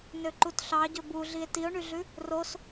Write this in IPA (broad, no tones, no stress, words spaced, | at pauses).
nøǃutɬɑ ɟɵbu ɮie̯tio̯ɳyɮʉ | ros